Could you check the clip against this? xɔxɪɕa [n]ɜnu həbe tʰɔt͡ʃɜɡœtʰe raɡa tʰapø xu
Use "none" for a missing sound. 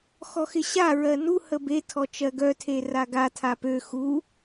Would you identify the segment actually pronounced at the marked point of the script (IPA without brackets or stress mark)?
ɹ